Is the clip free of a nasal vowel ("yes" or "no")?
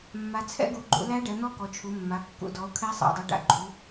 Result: yes